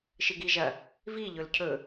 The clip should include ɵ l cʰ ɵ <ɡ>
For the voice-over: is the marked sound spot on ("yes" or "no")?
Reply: no